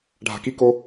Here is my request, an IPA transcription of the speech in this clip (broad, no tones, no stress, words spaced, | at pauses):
ɖʱa̤kiko